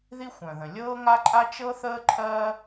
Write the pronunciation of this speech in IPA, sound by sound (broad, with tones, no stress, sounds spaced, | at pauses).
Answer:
ð i˥ xʷ œ̃˩ ð ə̃˩ lʲ ɤː˥ ŋ a˥ ǃʼ a˥ t͡ʃ ɤ˥ θ əː˥ ǃʰ ɜː˥